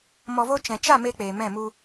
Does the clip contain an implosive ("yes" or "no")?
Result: no